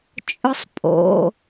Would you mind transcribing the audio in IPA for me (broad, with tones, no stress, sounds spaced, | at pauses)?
t͡ʃʼ ʊ˦ sˤ pʼ o̰˩˧˩